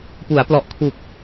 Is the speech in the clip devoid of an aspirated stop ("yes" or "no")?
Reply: no